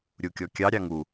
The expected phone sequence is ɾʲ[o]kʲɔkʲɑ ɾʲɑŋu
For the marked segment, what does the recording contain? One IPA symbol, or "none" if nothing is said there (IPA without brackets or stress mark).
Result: u